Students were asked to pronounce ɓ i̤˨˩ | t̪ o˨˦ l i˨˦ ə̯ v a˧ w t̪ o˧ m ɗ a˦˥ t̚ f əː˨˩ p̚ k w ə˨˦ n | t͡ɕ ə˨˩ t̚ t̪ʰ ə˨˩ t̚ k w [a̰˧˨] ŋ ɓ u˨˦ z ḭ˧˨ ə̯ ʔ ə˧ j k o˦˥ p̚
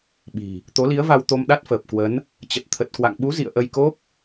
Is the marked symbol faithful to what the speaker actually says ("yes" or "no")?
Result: yes